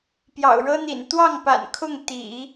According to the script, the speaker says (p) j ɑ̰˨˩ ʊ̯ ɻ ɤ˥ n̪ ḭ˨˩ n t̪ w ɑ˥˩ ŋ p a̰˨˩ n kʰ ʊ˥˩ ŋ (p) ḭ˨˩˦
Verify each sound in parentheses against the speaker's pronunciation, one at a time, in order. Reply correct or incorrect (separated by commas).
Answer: correct, incorrect